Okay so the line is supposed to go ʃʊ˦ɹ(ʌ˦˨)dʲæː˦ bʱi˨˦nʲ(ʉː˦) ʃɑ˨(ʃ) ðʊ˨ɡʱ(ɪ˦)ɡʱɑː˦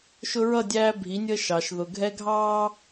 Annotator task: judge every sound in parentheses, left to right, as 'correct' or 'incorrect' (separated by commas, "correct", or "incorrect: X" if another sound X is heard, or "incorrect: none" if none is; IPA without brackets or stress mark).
correct, incorrect: əː˦, correct, incorrect: ɛ˦